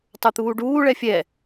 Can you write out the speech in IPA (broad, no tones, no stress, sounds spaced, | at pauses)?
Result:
tˤ ə˞ t̪ uː ɖ uː ɭ ɛ fʲ ɛ